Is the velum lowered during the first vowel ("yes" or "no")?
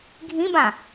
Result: yes